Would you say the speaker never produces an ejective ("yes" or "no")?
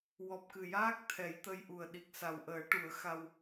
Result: yes